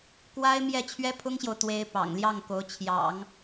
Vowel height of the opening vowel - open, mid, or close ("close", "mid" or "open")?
open